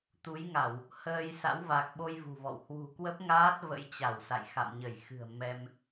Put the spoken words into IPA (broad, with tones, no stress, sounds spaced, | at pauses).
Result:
t̪ u˨˦ j ŋ a˧˩˨ w | h əː˧ j s a̰˧˥ w v a˨˩ k̚ ɓ o˧ j v ṳ˨˩ v ɔ̰˧˨ w h w ṳ˨˩ k w ə˦˥ p̚ ŋ aː˦˥ t̚ v ə̰˧˥ j t͡ɕ a˧˩ w s a̰˧˨ j x a̰˧˨ m ɲ ə˧˩ j x ɨ̤˨˩ ə̯ m ɛ˧ m